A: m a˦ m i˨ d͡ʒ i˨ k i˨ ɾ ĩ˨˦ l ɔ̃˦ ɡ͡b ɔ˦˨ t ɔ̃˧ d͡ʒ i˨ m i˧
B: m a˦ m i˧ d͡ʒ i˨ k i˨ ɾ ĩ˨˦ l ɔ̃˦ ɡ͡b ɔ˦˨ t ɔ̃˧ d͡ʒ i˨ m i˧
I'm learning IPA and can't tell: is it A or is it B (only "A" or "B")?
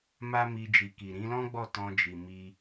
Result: B